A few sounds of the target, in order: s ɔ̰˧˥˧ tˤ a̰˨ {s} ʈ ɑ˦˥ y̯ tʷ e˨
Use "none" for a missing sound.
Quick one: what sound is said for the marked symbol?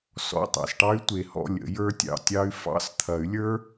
s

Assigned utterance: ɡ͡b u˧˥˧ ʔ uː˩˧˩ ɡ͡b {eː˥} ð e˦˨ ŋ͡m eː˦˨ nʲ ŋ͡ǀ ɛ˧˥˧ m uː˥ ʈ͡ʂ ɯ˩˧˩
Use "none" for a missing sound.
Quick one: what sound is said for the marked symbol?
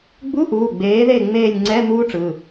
eː˨˥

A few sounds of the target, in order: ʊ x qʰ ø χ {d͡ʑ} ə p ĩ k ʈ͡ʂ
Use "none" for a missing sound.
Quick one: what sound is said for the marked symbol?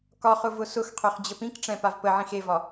d͡ʑ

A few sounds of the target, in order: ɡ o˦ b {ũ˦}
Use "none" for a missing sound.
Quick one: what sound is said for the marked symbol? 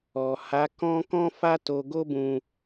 ũ˦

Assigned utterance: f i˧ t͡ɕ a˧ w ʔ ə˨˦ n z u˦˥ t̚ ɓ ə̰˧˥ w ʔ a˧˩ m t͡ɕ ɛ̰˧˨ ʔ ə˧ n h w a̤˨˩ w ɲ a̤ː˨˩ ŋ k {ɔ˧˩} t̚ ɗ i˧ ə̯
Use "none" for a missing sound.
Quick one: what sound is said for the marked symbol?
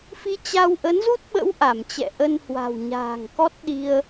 ɔ˦˥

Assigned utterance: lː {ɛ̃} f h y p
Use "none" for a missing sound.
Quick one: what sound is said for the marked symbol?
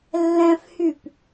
ɛ̃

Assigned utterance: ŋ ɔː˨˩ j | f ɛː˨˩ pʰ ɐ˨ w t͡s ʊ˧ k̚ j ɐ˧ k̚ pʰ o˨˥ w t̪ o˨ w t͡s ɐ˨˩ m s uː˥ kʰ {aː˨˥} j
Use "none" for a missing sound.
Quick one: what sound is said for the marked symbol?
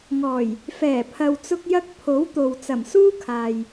aː˨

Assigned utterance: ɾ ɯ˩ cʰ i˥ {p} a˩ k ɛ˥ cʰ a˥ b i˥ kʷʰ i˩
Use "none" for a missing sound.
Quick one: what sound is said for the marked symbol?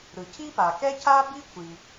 p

